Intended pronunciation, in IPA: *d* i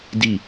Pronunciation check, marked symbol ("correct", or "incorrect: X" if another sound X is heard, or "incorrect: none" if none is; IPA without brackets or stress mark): correct